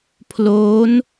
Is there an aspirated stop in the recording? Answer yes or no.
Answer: yes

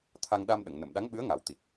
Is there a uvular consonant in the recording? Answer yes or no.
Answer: no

